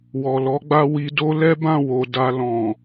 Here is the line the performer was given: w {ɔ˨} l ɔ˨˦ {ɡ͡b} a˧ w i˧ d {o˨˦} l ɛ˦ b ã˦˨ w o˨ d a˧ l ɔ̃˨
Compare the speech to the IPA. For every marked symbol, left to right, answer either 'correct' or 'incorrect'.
correct, correct, incorrect

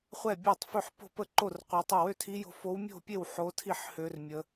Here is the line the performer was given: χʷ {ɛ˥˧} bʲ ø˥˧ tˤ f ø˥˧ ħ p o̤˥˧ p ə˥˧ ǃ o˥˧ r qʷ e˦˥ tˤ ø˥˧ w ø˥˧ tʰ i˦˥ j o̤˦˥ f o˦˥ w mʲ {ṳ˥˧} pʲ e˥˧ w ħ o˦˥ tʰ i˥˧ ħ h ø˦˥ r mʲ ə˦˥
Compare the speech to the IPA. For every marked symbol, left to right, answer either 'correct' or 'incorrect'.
correct, incorrect

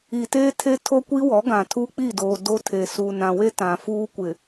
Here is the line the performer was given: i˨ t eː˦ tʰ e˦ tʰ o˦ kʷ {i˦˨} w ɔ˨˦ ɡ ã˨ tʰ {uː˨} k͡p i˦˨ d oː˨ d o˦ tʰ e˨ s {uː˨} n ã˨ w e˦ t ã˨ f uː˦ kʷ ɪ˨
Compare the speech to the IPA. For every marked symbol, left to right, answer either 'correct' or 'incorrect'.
incorrect, incorrect, correct

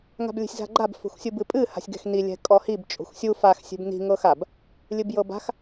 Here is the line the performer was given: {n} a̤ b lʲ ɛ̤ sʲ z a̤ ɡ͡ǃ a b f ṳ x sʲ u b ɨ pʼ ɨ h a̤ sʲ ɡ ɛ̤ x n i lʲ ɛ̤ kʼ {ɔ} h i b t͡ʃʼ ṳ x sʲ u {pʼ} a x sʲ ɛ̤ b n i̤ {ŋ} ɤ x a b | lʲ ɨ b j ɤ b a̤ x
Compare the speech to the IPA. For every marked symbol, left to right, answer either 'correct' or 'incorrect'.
incorrect, correct, incorrect, correct

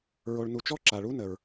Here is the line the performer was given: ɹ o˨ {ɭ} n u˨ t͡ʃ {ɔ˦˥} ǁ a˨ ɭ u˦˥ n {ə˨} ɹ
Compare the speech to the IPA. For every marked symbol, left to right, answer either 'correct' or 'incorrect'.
correct, correct, correct

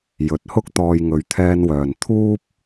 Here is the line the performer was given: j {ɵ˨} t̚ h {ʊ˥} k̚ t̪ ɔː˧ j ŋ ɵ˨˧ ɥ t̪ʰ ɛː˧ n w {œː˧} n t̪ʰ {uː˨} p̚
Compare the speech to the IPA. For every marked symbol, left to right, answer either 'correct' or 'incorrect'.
incorrect, correct, incorrect, incorrect

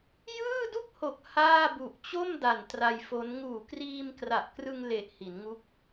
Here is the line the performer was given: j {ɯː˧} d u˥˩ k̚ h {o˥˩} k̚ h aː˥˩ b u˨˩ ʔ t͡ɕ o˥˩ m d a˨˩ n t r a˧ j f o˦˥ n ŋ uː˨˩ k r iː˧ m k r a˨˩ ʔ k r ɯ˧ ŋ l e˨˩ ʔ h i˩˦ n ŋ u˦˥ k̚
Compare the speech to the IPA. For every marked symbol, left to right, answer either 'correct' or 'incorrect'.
incorrect, incorrect

